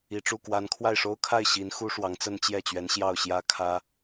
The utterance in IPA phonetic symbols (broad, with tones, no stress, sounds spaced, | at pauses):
i˨˩ ʈ͡ʂ u˥˩ k w a˧˥ n kʰ w a˥˩ ɪ̯ ʂ o˥ ʊ̯ kʰ a˥˩ ɪ̯ ɕ i˧˥ n x u˥ ʂ w ɑ˧˥ ŋ t͡s ə˥ n t͡ɕ j ɛ˥˩ t͡ɕ ɥ ɛ˧˥ n ɕ j ɑ˥˩ ʊ̯ ɕ j ä˥ kʰ ä˥